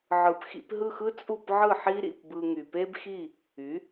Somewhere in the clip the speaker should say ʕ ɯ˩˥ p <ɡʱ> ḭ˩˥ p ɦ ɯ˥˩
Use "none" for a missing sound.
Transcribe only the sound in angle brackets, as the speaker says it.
x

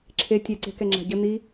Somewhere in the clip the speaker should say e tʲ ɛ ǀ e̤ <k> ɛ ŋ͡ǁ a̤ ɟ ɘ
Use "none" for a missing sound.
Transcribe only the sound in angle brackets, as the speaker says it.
k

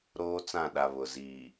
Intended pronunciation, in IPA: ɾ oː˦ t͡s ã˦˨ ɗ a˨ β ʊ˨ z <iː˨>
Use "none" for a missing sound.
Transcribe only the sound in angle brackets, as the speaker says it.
iː˨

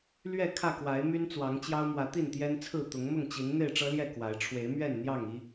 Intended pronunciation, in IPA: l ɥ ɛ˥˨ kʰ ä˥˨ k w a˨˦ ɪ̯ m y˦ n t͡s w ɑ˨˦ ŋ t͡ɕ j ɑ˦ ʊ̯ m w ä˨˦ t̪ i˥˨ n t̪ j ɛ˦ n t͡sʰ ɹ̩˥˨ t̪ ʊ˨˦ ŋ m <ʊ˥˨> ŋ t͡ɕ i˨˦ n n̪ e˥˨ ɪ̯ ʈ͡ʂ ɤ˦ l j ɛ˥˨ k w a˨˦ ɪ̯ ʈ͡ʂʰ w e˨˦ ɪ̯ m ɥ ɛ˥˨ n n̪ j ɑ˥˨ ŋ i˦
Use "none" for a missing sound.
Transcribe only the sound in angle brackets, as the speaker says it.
ʊ˥˨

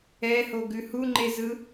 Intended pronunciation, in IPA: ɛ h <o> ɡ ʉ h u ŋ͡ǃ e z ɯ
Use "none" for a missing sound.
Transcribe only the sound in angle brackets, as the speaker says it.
o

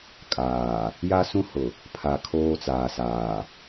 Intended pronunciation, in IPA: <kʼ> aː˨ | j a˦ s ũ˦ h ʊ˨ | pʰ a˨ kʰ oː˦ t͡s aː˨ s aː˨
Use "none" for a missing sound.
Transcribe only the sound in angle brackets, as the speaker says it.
kʼ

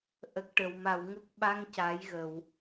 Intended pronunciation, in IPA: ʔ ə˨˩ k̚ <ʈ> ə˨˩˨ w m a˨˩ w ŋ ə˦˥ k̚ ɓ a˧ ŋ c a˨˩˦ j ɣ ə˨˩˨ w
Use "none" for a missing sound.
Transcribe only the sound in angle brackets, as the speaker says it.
ʈ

